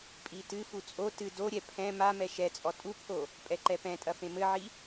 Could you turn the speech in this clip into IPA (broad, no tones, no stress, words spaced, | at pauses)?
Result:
pʼitɨfu t͡sʼo tɨ doɾʲɛ pʰɛ̃ mamɛ ʃɛt͡sʼɔ tʼupʰo | pʼɛǃɛpɛ̃tʼɐ fẽmɘʕi